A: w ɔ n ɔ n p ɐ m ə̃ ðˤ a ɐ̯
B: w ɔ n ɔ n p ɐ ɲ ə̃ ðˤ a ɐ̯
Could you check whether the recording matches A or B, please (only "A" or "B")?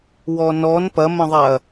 A